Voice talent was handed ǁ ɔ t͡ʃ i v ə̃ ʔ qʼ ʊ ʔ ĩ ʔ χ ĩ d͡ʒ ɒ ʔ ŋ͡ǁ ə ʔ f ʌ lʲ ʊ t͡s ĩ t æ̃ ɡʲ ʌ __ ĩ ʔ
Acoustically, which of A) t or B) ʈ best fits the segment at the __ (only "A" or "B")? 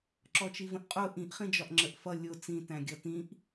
A